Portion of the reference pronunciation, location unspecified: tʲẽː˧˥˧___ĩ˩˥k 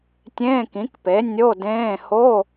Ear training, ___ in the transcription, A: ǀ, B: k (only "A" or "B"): B